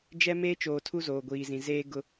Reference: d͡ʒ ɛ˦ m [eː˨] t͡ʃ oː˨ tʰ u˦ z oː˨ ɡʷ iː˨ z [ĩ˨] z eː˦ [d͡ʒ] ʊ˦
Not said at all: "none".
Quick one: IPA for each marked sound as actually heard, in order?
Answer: eː˦, ĩ˨, ɡ

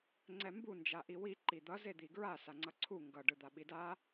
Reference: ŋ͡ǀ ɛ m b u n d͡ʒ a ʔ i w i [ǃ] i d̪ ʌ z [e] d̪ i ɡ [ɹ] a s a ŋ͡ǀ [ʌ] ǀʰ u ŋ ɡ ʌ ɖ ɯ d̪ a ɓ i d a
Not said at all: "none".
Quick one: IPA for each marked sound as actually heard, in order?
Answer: ǃ, e, ɹ, ʌ

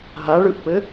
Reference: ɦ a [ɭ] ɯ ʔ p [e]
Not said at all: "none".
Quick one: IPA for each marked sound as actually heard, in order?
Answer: ɭ, ɘ

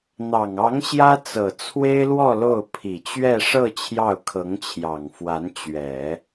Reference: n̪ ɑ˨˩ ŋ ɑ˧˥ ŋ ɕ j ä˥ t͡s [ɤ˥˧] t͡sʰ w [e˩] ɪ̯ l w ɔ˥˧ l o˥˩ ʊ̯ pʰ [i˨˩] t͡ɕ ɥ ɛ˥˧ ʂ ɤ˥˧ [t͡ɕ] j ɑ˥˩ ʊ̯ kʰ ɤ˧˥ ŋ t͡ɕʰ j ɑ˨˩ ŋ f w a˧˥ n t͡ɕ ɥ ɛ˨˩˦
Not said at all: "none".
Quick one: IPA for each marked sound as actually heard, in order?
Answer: ɤ˨˩, e˥, i˨˩, t͡ɕʰ

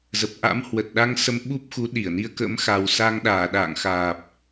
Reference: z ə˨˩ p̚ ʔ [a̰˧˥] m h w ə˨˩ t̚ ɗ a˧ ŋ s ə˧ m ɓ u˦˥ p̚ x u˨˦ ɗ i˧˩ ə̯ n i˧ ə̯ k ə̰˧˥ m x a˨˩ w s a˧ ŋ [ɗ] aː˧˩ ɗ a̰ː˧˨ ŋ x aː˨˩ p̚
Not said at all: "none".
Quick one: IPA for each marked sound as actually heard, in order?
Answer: a̰˧˥, ɗ

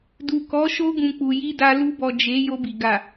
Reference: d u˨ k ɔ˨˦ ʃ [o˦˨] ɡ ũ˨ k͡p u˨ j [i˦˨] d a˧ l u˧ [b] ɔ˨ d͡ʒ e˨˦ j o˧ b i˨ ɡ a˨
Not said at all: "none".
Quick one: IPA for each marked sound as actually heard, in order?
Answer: o˧, i˧, b

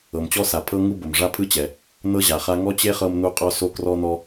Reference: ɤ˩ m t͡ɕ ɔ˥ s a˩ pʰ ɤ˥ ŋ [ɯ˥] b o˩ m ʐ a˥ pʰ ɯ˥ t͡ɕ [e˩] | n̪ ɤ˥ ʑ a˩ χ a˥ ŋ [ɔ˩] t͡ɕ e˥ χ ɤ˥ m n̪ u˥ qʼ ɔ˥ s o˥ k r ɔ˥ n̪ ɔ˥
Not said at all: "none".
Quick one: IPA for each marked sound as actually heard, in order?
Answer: u˥, ɛ˩, ɔ˥

